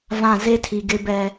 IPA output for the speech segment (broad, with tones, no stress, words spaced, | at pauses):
vã˦˨ ze˦tʰi˨ ɡɪ˦bɛ˦